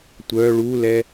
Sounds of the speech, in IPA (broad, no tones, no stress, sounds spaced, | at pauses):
tʷ œ ɭ u l ɛ